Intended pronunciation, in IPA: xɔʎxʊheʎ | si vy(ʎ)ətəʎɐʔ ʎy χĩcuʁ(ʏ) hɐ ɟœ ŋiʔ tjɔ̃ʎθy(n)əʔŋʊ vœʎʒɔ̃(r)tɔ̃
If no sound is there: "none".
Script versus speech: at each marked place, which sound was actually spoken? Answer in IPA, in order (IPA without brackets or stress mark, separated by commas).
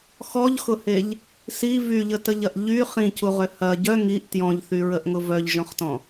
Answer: ʎ, ʏ, ɹ, χ